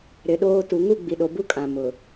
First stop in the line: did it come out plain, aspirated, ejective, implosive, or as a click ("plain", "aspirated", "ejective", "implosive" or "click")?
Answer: implosive